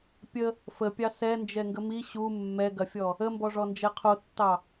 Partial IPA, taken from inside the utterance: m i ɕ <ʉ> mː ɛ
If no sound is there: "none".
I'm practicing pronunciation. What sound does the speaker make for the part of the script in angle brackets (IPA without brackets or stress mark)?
u